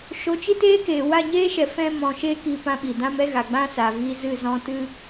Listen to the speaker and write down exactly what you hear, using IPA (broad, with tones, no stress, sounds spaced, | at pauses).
ʃ o˧ t͡ʃ i˦ t eː˦ k eː˨ w a˦˨ ɲ eː˦ ʃ ɛ˨ f ɛ̃˧ m ɔ̃˨ ʃ e˧ k i˦ p ã˦ ɓ i˨ d ã˦ m ɛ˦ ɣ a˨ ɡ͡b ã˦ s a˨ v i˧ z ɨ˦˨ z ɔ̃˧ t ɨ˦